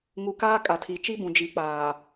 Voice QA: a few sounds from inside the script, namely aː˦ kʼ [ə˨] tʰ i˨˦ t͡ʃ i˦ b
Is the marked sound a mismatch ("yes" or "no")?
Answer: yes